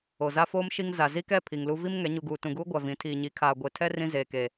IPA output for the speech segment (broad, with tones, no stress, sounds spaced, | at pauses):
o˨ z a˦ f oː˦ m ʃ i˦ ŋ z a˨ z i˦ k ɛ˦˨ pʰ i˨ ŋ l u˦ v i˦ m ŋ ɛ˨˦ ɲ u˨ ɡ uː˨ t ũ˨ ɡ uː˦ ɡʷ a˨ v ĩ˨˦ tʰ iː˨ ɲ i˨˦ kʰ aː˨ ɡʷ e˨ tʰ ɛ˦ r ĩ˦ z eː˨ k e˨